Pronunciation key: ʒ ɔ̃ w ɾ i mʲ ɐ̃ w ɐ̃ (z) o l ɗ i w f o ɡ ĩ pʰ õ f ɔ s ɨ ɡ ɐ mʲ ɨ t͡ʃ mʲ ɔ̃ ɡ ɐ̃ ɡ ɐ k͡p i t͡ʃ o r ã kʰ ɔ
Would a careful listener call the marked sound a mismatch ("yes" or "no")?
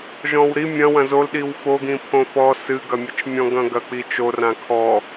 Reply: no